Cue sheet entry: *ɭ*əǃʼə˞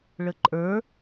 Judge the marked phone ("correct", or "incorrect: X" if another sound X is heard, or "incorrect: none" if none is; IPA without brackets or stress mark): correct